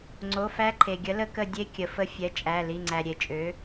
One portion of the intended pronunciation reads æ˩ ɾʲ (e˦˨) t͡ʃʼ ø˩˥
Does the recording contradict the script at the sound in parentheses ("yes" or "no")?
yes